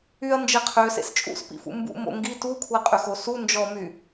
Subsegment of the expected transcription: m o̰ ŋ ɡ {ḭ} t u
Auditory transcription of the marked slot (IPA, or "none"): i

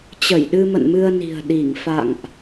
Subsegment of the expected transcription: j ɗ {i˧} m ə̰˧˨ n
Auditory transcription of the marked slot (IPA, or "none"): ɨ˧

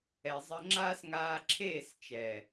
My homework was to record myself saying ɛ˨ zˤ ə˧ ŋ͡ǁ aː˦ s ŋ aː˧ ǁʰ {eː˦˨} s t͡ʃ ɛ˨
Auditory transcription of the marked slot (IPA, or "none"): eː˦˨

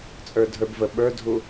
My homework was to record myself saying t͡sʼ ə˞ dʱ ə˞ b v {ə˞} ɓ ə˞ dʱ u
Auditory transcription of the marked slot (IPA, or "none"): ə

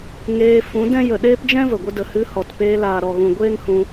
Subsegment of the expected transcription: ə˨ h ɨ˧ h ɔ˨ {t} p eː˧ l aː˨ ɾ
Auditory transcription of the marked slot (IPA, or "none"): t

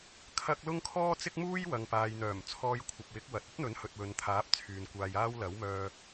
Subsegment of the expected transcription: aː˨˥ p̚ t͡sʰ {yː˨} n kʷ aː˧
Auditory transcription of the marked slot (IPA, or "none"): yː˨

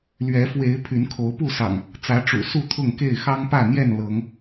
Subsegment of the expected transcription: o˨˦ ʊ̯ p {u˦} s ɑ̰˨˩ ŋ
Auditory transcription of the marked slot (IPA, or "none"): u˥˨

